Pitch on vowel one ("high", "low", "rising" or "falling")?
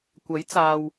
rising